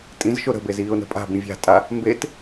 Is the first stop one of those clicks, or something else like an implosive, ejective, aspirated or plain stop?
ejective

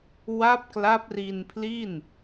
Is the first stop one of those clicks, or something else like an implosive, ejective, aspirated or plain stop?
plain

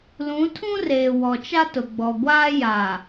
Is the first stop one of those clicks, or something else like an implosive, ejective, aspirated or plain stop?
aspirated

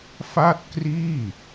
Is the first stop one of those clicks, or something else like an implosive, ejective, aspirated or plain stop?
plain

